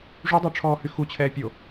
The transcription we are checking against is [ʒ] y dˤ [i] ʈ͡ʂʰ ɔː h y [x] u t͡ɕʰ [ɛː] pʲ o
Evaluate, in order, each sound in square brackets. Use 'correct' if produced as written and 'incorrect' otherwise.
incorrect: ʐ, incorrect: y, correct, correct

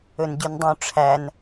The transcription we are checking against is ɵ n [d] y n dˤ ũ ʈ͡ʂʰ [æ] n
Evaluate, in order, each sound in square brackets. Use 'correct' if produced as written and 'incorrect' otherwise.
incorrect: ɟ, correct

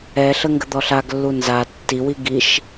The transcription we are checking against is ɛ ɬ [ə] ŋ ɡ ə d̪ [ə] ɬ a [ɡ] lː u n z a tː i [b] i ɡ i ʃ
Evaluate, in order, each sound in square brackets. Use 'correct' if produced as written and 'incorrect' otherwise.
correct, incorrect: ɔ, correct, incorrect: w

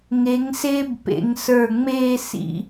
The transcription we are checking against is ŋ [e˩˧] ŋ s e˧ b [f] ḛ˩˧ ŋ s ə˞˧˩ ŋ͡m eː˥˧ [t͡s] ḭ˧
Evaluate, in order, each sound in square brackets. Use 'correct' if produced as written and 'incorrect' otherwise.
correct, incorrect: p, incorrect: s

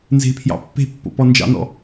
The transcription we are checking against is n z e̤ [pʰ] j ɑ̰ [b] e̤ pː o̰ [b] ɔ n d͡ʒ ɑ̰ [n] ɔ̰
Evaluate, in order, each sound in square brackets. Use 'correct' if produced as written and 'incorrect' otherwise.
correct, incorrect: pː, incorrect: p, correct

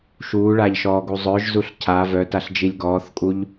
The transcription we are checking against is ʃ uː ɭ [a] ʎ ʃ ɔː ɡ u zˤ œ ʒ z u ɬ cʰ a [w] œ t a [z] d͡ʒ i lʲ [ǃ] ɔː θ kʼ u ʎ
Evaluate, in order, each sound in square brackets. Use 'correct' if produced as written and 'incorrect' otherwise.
correct, incorrect: v, incorrect: ɬ, incorrect: ɡ

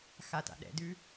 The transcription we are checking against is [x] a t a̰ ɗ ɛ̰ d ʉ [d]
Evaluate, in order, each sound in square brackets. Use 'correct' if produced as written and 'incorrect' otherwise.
correct, incorrect: none

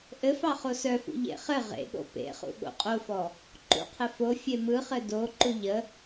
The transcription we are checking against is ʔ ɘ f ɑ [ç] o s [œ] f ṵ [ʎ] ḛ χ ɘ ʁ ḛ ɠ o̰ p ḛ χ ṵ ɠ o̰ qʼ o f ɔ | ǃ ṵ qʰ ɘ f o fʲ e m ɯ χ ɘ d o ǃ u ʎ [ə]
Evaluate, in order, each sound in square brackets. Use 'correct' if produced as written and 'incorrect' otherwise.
incorrect: χ, correct, correct, correct

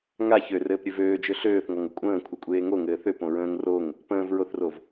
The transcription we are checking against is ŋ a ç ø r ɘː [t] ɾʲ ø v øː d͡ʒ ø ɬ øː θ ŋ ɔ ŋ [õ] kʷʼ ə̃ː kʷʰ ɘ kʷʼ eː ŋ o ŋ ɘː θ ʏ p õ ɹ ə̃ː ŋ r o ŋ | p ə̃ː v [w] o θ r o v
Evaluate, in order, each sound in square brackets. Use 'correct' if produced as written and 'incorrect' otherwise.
incorrect: p, incorrect: o, incorrect: ɹ

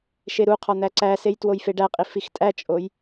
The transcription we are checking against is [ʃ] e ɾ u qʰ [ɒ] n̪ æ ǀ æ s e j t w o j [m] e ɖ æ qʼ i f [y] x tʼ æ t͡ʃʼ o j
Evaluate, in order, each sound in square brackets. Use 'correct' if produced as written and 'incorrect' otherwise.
correct, correct, incorrect: f, incorrect: i

